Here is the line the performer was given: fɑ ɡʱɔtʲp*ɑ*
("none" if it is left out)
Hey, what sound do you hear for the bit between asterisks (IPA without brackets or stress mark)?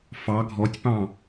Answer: ɑ̃